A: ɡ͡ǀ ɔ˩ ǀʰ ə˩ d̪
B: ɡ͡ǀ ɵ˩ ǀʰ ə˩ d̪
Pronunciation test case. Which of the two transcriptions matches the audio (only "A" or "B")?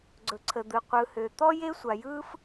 B